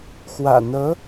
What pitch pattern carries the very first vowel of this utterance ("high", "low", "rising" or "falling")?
low